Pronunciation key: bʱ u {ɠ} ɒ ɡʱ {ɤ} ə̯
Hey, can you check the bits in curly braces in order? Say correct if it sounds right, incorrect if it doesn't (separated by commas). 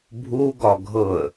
incorrect, correct